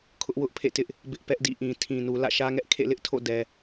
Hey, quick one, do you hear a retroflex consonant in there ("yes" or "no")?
no